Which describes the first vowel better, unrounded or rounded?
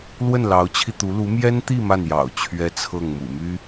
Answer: unrounded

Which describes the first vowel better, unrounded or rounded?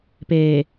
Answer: unrounded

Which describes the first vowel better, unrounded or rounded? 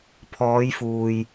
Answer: rounded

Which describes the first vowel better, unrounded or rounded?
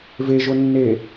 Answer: unrounded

